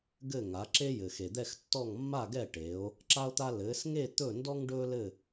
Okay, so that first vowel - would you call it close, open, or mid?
mid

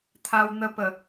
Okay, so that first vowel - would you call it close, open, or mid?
open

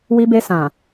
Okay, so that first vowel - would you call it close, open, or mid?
close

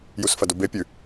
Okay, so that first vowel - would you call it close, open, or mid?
close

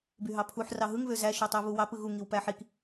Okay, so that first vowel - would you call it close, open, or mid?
close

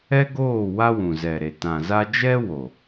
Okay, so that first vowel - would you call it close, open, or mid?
mid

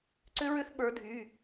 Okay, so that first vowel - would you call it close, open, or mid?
close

